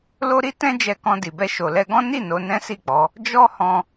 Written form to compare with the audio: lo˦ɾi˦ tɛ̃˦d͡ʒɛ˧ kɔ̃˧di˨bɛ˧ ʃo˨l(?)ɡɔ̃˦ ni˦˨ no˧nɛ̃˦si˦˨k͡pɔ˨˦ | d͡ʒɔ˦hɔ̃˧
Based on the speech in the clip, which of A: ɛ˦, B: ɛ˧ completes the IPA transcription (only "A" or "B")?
B